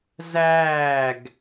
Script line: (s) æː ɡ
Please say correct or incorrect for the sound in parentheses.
incorrect